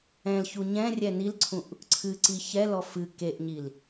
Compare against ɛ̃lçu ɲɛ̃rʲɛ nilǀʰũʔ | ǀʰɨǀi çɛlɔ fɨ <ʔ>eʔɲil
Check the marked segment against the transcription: incorrect: k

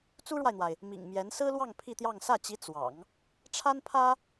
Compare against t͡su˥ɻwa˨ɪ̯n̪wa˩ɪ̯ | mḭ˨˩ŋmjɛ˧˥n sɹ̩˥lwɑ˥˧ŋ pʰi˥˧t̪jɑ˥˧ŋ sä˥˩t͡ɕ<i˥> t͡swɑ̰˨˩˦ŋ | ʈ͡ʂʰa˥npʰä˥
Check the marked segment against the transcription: incorrect: i˧˥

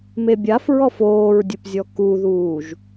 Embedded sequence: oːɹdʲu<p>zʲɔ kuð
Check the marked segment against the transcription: correct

